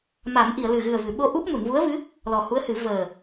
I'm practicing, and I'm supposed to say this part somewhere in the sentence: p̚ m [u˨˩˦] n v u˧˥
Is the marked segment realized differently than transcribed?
yes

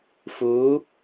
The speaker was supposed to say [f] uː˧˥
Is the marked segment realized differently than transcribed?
no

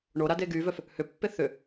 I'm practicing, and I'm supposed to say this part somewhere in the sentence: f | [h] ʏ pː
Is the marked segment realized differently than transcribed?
no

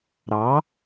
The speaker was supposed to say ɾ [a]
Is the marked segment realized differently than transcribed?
yes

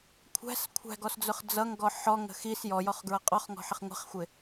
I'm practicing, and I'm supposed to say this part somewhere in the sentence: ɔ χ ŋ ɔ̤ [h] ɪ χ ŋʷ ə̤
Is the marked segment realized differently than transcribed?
yes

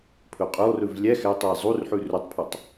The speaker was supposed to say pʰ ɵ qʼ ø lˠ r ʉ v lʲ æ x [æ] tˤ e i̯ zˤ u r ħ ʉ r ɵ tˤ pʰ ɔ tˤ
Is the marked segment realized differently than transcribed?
no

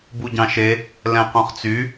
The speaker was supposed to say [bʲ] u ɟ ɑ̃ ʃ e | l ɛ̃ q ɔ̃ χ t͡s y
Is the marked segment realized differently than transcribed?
yes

